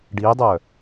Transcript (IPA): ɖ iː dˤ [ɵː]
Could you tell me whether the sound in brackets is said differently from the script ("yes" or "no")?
yes